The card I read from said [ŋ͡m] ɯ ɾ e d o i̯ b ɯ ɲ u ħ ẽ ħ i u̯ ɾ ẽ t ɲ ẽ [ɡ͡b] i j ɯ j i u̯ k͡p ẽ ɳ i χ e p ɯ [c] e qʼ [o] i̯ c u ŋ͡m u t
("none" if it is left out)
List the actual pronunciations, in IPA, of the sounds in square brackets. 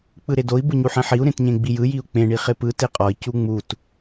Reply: k͡p, ɡ͡b, t, ɔ

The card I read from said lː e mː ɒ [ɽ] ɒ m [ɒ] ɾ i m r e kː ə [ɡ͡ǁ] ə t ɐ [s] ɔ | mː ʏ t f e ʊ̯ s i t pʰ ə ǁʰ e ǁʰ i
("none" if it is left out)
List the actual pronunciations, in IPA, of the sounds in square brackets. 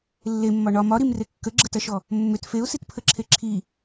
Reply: ɳ, ɒ, ɡ͡ǁ, ʃ

